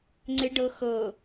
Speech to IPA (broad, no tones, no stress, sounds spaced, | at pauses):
ŋ͡ǀ ɪ ɖ ɤ x ɤ